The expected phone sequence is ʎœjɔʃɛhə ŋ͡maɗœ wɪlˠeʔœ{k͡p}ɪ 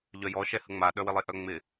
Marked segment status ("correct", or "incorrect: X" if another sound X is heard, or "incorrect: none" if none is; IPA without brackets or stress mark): incorrect: ŋ͡m